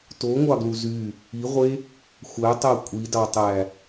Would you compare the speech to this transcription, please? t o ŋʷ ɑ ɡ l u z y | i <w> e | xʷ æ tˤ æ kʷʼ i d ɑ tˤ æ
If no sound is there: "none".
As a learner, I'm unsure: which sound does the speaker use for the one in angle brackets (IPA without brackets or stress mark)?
ʁʷ